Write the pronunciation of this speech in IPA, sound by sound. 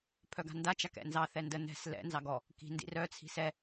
pʰœɡa̤nda t͡ʃakɛ̰nzɑ θɛndə nɛ̤s lɛ̰ nzɑɡɔ | ki̤ ndḭrœ t͡sʰi̤sɛ

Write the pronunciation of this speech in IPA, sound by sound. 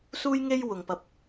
suː˥jŋe˥j wʊ˨ŋpɐ˧p̚

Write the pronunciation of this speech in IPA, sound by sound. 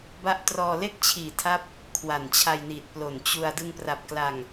ba˦˥ʔtrɔː˧ le˥˩k̚t͡ɕʰiː˨˩tʰa˦˥p̚ | kʰwa˨˩nt͡ɕʰa˧jniː˨˩t̚plo˨˩n t͡ɕu˧a̯ dɯ˧ŋpra˨˩p̚ kla˧ŋ

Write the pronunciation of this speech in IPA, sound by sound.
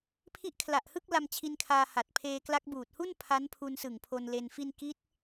pʰi˦˥ʔkʰla˨˩ʔhɯ˥˩k̚ la˧mt͡ɕʰi˧nkʰaː˧ ha˨˩t̚pʰeː˧kla˦˥k̚ buː˨˩t̚hu˥˩n pʰa˦˥npʰu˧nsɯ˨˩ŋ pʰo˧nle˧nfi˥˩n ki˦˥t̚

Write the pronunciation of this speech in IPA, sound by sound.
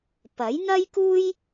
pɐ˨˥jn̪ɐ˥jkuː˥j

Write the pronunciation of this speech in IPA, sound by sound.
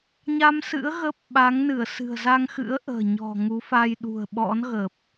ɲa˧msɨ̰˧˥ə̯ ɣə˦˥p̚ ɓa˨˦ŋnɨ˧˩ə̯ sɨ̤˨˩ə̯za˧ŋxɨ̰˧˥ə̯ ʔə̤ː˨˩ ɲɔ̤˨˩ŋu˨˦ fa˧jɗṳ˨˩ə̯ ɓɔ̰˧˥nɣə˨˩p̚

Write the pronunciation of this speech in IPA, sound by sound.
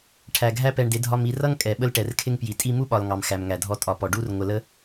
ʈʰæ˨ɡʱæ˦pɛ˧ɳdɪ˨˦ dʱɒ˧mi˧rʌ˦ŋkʼɛ˨ ɓə˧lʈɛ˨rkʰɪ˧ŋpji˨ tʼi˧mu˦ɓɒ˨l ŋɑ˨mxæ˨mŋæ˨dʱɔ˧ tʼɒ˧pɔ˧ ɖu˦r ŋʷə˧lə˦

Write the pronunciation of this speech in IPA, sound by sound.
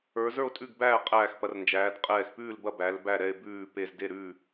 ə˞˩˧zə˞˥˩o̯tʼʉ˥˩ɡbæː˥˩ qʼæː˧˩xpɐ˩˧rnd͡ʒæː˩˧d qʼɛː˧˩xpʉː˥˩lbɐ˥˩ bæ˩˧l bæ˧˩ɾɛ˧˩e̯ bʉː˧˩ pe˧˩zde˥˩ɾʉː˥˩

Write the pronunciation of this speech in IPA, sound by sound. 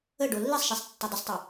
ə ɖolːisˤʃesˤ tːodˤəsˤtˤɛ

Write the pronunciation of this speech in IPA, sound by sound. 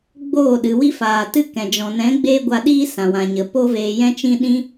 ɡ͡boː˦˨ɗɨ˨ wi˦faː˨ tɨ˦kɛ̃˨ d͡ʒɔ̃˨nɛ̃˨˦ ɡ͡beː˦ɡʷa˧ɗiː˦ sã˨wã˨ɲə˨ po˦veː˧jɛ̃˦t͡ʃĩ˦ ɗĩ˦

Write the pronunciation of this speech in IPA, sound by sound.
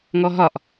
ŋɔɦɒʔ

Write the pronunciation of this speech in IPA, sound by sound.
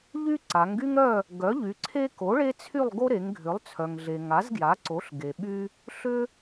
ʎy˦ǀa˩˧ŋɡy˦ŋɾœ˦˨ | ɡœ˩˥ʎy˩˧ǀʰe˦ ko˩˥ɭe˦t͡sʰy˦˨lˠɡo˦ ɾe˩˧ŋɡʱʏ˩˥lˠt͡sʰœ˩ŋɮe˩ ŋa˩˥zɡja˩˥ǀo˩˥ɬ ɡe˩ɓy˦ | ɬʏ˦

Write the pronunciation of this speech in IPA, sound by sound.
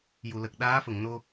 ju˨˩˨lə˨˩k̚ ɗaː˧˥fə˨˩˨ŋno˧

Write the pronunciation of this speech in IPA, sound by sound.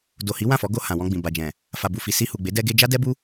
do˨hi˨˦ wã˦˨fɔ˨˦ɡo˧ hã˨wɔ̃˧ɡ͡bĩ˨ ba˨d͡ʒɛ̃˨ | fa˨bu˨fi˨ si˧hu˨ɡ͡be˨˦ dɛ˧ɡe˧ d͡ʒa˦dɛ˦bu˦

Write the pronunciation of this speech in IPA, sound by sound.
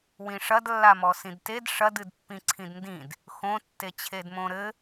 wĩʂɐdlːamɔ sĩdted ʂɐd ɨdpːĩǀʰĩdndĩd | xõtːet͡ɕʰedmõ ɾɘ

